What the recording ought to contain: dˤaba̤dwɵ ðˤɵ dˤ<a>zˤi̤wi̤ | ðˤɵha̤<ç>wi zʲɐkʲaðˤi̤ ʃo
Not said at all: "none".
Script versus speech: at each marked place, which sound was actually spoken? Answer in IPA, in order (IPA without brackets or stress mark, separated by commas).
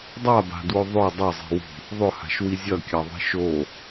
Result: ɐ, ʃ